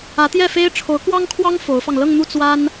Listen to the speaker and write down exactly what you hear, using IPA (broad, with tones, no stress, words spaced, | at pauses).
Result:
ä˧˥t̪jɛ˥˩fe˥ɪ̯ ʈ͡ʂʰo˧˥ʊ̯kwɑ˥ŋkʰwɑ˥ŋ fo˧˥ʊ̯fɑ˧ŋ lɤ˥˧ŋn̪u˥˩ t͡swa˥n